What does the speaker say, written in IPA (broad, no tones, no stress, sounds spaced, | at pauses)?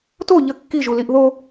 t o ʎ ə kː i ʒ u l i ʔ ð o